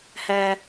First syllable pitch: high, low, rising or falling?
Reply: high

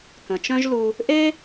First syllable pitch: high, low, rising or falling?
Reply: low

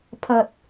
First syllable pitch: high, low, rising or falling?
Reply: low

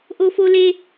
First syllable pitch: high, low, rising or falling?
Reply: high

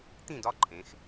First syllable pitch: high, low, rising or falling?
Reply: falling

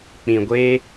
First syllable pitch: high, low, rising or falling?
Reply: low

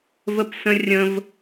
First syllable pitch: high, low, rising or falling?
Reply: high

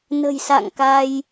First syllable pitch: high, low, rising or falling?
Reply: low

